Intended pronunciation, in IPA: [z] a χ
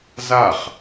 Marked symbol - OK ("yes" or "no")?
yes